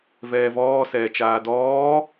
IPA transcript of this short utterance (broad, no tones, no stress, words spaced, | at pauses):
vɛːvɔː sɛːt͡ʃaːdɔː